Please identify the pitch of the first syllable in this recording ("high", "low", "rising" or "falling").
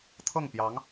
falling